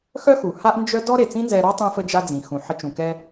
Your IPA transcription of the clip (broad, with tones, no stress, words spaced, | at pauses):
xœ˥xu˩ ha˥ʔnd͡ʒœ˥ dɔ˥ ɾe˩t͡sĩ˥nzɛ˧ɾɔ˥ tˤũ˧fə˧d͡ʒa˧d͡zĩ˩ xũ˩ħə˧ t͡ʃũ˩kɛ˧